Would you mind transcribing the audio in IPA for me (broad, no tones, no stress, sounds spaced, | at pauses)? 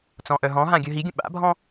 t͡s ɔ̃ ʔ œ ɦ ɔ̃ ɦ ã ɡʲ œ ɦ i ɡʲ ə̃ ɓ a̰ bʱ ɔ̃